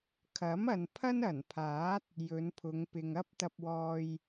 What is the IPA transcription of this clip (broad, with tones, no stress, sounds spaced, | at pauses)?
kʰ ɐ˨˥ m ɐ˨ n pʰ ɐ˥ n ɐ˨˩ n pʰ aː˨˥ t̚ | j ɵ˨˧ n pʰ ʊ˨˧ ŋ p ɪ˨ ŋ ɐ˥ p̚ t̪ ɐ˧ p̚ w ɔː˧ j